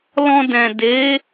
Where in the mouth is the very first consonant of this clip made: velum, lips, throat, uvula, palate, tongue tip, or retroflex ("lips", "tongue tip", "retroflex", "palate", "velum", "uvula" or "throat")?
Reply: tongue tip